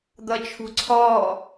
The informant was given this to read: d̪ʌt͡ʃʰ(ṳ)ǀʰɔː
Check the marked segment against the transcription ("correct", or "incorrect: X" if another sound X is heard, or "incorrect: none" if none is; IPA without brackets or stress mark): correct